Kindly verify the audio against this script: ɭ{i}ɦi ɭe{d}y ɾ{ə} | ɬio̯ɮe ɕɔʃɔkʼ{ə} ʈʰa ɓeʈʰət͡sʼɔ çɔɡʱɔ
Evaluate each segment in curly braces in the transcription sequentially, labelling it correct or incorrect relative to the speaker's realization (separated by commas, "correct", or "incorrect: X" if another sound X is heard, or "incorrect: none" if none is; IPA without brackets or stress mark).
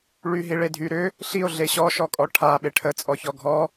incorrect: y, incorrect: dʱ, incorrect: ʏ, incorrect: ɔ